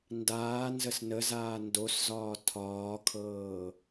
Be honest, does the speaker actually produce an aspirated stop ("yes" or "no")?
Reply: yes